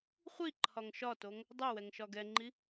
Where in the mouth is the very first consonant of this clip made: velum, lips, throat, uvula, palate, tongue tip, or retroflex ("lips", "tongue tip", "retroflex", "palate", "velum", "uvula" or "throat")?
uvula